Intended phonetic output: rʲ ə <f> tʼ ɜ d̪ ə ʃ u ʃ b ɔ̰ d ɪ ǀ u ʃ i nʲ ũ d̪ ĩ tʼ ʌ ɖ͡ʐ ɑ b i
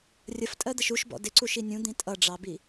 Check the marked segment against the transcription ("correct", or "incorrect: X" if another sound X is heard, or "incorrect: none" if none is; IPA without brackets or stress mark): correct